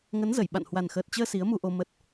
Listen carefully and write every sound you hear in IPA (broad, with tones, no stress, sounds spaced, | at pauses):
ŋ ə˨˦ n z ə˧˩ j ɓ a̰˧˨ n h w a˨˩ n x əː˨˩ t̚ t͡ɕ əː˧ s i˨˦ ə̯ m u˧ ʔ o˧ m ə˦˥ t̚